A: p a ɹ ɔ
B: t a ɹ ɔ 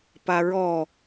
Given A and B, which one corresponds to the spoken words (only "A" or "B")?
A